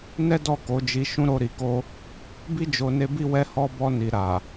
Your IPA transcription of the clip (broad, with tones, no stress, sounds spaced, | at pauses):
n ɛ˦ d ɔ˦˨ k o˨˦ d͡ʒ i˧ ʃ ũ˧ ɾ o˧ ɾ i˨ k o˧ | b i˦ d͡ʒ o˧ n e˦ b i˦ w ɛ˦ h ɔ˧ b ɔ˧ n i˨ ɾ a˨